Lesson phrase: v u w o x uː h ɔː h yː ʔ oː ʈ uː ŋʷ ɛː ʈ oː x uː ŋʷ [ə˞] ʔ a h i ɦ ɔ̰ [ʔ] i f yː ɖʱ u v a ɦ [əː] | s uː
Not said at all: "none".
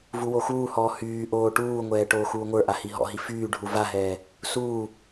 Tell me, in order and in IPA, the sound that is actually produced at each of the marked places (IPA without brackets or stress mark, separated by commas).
ə˞, ɦ, ɛː